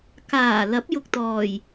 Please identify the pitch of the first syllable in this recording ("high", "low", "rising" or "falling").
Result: low